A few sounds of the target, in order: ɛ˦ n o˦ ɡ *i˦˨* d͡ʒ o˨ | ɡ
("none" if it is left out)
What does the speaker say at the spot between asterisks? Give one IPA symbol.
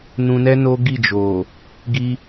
i˦˨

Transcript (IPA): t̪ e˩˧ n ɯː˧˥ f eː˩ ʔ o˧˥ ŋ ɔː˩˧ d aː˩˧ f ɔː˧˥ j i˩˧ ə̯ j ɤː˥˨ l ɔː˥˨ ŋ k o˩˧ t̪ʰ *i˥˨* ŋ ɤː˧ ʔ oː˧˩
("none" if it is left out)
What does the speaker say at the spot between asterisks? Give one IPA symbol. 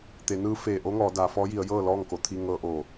i˧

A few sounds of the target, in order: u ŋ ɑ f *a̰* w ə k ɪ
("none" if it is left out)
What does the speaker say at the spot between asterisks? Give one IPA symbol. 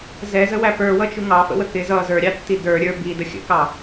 ə̰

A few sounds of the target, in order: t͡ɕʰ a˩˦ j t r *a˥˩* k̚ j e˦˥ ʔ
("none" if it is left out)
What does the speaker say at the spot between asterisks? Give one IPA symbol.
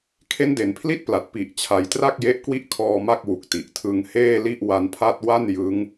a˥˩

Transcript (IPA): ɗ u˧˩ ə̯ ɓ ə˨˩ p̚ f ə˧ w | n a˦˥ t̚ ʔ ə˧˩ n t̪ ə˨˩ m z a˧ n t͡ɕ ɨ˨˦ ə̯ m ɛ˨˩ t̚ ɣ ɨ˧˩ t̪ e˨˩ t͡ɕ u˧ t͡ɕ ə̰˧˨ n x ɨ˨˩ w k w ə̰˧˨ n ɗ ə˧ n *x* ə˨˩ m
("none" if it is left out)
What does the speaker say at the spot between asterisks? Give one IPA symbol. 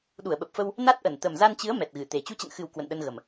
ɣ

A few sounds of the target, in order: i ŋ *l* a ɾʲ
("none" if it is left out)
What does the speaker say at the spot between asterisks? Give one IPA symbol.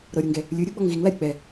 l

